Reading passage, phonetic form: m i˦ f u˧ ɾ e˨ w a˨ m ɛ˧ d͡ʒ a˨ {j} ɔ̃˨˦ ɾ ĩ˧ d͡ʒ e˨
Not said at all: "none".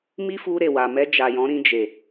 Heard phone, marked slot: j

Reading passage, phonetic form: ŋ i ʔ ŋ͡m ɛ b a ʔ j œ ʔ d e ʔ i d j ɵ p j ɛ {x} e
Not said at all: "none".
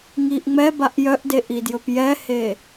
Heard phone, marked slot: h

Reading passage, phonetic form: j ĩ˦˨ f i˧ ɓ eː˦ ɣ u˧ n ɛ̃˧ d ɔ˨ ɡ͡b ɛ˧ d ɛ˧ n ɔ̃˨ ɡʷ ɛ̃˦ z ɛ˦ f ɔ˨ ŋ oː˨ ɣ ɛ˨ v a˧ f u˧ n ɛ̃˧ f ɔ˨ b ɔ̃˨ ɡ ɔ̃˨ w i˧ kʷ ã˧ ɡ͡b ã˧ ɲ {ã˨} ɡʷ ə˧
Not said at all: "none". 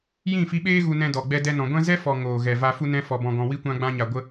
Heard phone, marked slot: a˨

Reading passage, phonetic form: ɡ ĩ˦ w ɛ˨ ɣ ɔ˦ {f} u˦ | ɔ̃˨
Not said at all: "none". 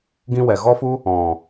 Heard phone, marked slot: f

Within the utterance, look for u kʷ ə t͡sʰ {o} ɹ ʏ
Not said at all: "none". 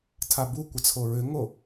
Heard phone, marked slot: o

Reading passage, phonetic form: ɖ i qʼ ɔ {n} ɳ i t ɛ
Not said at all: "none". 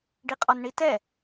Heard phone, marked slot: n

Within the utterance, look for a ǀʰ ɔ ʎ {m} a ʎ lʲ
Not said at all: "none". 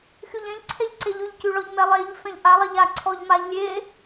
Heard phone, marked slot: m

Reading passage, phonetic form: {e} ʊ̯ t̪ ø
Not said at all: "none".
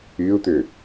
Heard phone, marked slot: y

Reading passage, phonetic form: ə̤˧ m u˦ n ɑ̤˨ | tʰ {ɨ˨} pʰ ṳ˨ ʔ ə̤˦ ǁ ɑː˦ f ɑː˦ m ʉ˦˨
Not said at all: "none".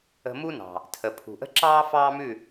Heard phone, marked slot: ə˨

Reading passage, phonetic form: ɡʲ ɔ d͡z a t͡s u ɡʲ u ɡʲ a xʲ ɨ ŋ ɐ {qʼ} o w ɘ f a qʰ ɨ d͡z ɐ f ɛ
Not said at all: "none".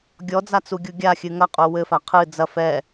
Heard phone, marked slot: qʼ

